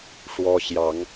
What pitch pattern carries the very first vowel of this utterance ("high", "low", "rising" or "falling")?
high